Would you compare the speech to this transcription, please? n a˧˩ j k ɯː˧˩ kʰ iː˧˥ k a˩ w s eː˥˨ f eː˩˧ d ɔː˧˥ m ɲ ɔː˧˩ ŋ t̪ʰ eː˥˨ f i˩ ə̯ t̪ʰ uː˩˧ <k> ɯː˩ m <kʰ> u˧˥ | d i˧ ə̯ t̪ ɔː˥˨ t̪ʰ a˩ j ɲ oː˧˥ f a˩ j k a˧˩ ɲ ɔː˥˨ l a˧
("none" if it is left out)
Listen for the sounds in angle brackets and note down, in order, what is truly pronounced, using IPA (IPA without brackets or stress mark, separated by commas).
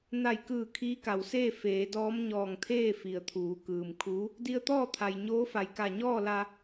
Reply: k, kʰ